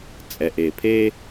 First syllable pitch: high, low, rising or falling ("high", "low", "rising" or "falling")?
low